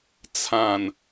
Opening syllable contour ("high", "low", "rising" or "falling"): low